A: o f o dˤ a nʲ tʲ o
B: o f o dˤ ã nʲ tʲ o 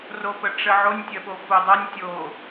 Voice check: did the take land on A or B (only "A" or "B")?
A